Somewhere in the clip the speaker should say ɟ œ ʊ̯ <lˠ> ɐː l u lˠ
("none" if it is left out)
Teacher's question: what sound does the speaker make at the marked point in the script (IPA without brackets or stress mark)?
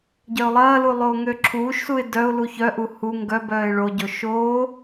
lˠ